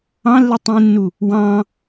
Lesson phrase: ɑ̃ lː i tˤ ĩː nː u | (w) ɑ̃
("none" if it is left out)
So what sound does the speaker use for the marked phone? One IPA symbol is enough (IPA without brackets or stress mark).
w